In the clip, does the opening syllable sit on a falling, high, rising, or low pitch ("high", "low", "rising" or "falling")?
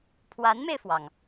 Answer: rising